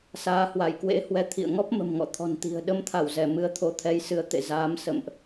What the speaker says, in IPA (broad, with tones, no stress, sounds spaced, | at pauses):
s aː˨˦ h w a˧˩ j k w ḛ˧˥ h w ɛ˨˦ t̪ʰ ḭ˧˨ ə̯ ŋ ɔ˦˥ p̚ m ə̤˨˩ m ŋ ɔ̰˧˨ t̪ʰ ɔ̤˨˩ n t̪ i̤˨˩ ə̯ ɗ ə˧ m t̪ʰ a˧˩ w z ɛ˧˩ m ɨ˨˦ ə̯ t̪ʰ o˨˦ t̪ʰ ɛ˨˦ j s ɨ˨˦ ə̯ t̪ ḛ˧˨ z aː˨˦ m s ə̰˧˨ m ʔ